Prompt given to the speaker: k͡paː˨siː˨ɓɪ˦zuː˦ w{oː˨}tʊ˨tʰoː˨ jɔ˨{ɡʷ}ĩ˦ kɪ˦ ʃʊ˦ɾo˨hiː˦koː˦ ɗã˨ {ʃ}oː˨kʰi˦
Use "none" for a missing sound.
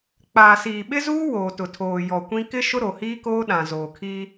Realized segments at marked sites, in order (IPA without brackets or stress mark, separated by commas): oː˨, kʷ, z